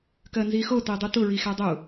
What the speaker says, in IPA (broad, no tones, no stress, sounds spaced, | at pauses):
k ɜ n z i x o t i dˤ y t ʊ ɹ i x ɛ dˤ u